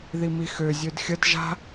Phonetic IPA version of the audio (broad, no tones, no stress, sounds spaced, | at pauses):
ð i m i x ø zʲ ø d xʲ ə d ʒ a̤